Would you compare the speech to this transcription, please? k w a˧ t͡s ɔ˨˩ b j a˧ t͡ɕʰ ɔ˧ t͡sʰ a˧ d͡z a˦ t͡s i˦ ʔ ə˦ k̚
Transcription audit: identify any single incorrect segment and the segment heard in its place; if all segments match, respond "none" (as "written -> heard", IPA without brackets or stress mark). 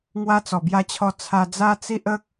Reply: k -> ŋ